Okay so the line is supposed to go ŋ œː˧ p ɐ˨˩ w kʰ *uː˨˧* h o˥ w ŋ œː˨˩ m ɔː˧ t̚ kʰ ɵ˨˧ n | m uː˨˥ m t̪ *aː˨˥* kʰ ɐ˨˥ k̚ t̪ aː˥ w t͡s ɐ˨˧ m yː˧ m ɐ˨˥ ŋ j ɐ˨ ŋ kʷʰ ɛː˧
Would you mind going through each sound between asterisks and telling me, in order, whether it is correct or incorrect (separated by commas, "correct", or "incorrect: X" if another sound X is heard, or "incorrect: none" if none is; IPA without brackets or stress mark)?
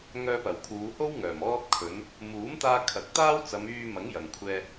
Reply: correct, incorrect: aː˧